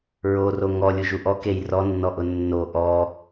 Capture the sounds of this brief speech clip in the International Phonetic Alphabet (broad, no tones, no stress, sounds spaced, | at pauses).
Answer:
ɹ o r o ŋ ɔ lʲ u ʒ u ʔ ɔ k e j r ɔ nː ɔ ʔ ʊ nː o ʔ ɔ